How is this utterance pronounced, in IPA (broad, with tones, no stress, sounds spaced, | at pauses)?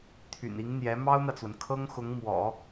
t̪ʰ y̰˨˩ n i˧˥ ŋ n̪ j ɛ˧˥ m ɑ˥ ʊ̯ n̪ ä˨ t͡s w ə˩ n kʰ ɤ˥ ŋ x ʊ˧˥ ŋ m w ɔ̰˨˩˦